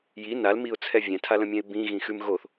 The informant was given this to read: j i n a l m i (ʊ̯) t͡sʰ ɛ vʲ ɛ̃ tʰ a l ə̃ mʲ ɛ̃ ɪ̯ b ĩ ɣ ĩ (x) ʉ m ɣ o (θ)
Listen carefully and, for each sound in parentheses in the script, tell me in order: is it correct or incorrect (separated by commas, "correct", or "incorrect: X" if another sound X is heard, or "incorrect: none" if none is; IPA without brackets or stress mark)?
correct, correct, correct